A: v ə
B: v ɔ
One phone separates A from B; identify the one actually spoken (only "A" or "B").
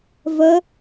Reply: A